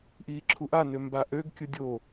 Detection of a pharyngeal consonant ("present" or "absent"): absent